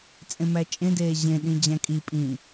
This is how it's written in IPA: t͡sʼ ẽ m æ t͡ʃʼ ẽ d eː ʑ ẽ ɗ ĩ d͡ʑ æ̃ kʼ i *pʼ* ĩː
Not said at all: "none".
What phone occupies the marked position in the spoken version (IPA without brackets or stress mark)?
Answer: pʼ